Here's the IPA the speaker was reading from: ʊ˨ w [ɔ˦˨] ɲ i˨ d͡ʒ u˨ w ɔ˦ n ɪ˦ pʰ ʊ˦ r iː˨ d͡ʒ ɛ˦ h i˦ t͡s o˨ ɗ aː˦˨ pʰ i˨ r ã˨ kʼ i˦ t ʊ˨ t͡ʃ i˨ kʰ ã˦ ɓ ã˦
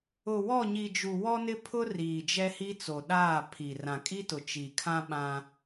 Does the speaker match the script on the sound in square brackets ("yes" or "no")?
yes